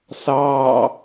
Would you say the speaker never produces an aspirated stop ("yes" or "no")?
yes